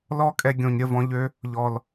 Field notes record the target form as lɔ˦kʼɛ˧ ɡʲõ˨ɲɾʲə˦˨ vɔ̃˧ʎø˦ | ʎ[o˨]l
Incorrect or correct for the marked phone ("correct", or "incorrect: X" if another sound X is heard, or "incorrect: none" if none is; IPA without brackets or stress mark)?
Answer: incorrect: ɔ˨